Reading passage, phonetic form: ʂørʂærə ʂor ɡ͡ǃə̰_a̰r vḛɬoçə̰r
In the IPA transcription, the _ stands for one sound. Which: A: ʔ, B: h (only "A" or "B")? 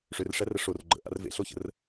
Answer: A